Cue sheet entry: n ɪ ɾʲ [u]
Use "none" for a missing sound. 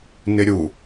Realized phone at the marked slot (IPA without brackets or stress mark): u